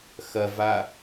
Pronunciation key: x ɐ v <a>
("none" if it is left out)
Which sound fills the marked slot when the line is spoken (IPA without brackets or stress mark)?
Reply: a